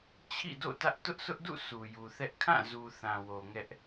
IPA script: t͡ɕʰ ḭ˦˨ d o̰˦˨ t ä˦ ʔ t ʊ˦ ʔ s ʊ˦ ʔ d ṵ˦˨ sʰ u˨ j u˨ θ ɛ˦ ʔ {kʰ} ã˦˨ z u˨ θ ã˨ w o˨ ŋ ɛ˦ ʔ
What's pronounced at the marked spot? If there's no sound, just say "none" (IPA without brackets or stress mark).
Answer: kʰ